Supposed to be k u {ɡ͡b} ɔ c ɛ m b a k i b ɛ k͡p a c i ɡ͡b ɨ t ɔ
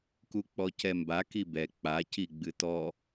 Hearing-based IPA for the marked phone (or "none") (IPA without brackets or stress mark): k͡p